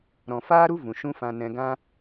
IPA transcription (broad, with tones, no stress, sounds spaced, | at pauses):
ɾ ɔ̃˨ f aː˦ ɾ u˦ v ũ˨ ʃ ũ˦ f ã˧ n ɛ̃˧ ɡ ã˦